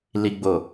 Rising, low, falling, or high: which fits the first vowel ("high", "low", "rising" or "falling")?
low